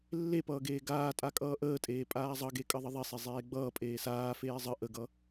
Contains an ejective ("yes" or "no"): yes